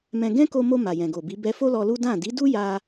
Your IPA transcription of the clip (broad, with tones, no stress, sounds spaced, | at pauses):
m ɛ̃˧ ɡ ɛ̃˦ k o˧ m o˧ m a˨ j ɛ̃˨ ɡ o˨ b i˨˦ b ɛ˧ f o˦ l ɔ˧ l u˦ d ã˦˨ d i˨˦ d u˦ j a˧